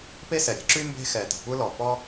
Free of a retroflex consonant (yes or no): yes